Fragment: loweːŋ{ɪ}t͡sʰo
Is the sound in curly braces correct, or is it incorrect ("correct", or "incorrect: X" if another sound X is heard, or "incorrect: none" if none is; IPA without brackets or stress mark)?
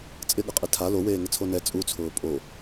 correct